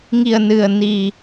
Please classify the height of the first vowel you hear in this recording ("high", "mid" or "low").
high